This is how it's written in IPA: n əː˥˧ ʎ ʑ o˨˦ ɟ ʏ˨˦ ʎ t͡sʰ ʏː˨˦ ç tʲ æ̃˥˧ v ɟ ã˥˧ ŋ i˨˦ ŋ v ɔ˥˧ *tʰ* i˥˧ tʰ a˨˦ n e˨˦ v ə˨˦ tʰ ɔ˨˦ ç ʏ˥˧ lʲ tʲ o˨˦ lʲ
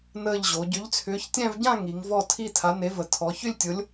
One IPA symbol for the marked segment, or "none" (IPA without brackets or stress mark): tʰ